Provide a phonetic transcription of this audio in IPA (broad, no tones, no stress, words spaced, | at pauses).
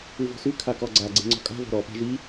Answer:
ʉvɔ̤sʉ kʰakɔɡ͡ǀa ɡ͡ǀe̤ŋ͡ǀɔ̤kʼa̤ vɔ̤ɾɔ pa̤ʒi